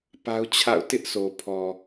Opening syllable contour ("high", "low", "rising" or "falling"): high